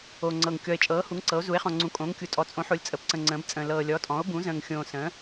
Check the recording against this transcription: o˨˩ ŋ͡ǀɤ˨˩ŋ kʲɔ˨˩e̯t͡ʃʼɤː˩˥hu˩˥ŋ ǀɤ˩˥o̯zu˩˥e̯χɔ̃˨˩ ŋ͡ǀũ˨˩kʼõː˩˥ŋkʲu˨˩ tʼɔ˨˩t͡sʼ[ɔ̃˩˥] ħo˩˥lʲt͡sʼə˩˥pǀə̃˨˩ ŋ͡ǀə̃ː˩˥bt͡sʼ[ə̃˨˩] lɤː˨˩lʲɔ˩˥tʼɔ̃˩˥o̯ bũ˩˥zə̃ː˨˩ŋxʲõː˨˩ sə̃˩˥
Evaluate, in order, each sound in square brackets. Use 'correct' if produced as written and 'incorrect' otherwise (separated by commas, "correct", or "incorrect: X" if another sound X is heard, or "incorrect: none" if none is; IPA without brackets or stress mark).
incorrect: õ˩˥, incorrect: ə̃ː˨˩